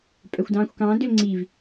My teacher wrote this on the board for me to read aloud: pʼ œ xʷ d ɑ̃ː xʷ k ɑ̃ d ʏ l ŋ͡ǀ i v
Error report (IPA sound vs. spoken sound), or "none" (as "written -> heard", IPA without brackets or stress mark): none